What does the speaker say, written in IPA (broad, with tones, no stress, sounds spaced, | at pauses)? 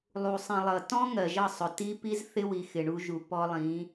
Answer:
lˠ u˨ sˤ ĩ˨ lˠ ʌ˨ t ɔ̃˦ ŋ ɜ˨ ʒ ʌ˦˨ sˤ ʊ˨ t i˦ p i˦ z θ ɪ˦ w i˨ x ɪ˨ ɳ u˦ ʒ u˨ p ɔ˦ lˠ ĩ˨˦